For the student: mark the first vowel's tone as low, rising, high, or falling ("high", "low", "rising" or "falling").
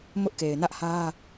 high